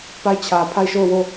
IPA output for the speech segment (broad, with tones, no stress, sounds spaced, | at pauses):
p a˦˨ ɪ̯ t͡ɕʰ ä˨ pʰ a˦˨ ɪ̯ ʃ o˦˨ ʊ̯ w o˦˨